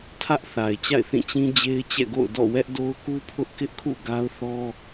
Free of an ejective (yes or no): yes